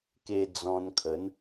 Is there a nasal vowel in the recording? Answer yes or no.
yes